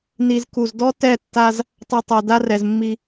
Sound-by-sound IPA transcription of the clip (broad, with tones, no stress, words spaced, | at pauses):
ni˨zku˨z dɔ˦tɛ˦˨tːa˦z | tˤɛ˨ tˤo˨ da˦rɛ˨zmːi˦